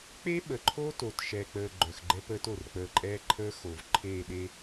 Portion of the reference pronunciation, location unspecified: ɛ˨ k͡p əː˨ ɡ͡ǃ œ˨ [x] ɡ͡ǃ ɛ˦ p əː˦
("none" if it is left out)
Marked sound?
x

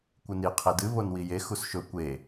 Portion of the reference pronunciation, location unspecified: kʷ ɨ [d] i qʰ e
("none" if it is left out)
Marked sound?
n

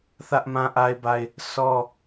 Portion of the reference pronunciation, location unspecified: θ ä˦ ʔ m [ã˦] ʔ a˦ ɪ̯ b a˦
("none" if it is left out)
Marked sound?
ã˦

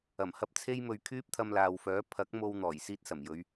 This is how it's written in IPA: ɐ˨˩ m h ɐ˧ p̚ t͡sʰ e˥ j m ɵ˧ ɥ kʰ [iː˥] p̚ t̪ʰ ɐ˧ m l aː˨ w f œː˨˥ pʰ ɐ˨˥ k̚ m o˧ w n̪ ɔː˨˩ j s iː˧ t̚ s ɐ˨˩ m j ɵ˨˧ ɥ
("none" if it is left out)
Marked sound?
yː˥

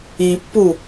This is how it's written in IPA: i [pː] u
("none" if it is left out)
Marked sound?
pː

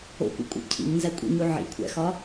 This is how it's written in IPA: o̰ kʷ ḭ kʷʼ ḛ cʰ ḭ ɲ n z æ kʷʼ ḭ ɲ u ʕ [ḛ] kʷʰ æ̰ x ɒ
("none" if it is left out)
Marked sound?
ḭ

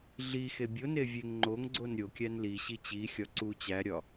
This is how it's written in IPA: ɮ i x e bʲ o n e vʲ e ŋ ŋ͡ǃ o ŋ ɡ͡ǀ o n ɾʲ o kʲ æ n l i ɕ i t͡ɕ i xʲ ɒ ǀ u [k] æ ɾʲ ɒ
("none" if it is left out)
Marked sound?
t͡ɕ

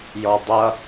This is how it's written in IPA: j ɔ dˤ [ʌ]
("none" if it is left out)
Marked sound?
ʌ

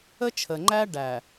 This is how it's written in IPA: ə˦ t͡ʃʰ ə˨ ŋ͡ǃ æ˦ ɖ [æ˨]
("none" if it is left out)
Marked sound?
æ˨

